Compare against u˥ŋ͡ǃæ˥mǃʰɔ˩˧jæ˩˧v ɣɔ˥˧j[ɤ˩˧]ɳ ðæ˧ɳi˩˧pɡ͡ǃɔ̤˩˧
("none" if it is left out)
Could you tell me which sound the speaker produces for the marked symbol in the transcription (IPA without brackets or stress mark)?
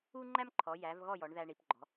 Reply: ɔ˩˧